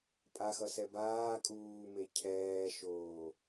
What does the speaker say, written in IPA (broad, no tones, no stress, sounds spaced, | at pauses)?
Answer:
pʼ a x ʌ s ɛ b aː kʼ uː m e cʰ ɛː ʃ oː